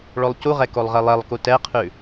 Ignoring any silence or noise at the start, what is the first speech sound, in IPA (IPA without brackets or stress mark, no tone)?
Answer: ɭ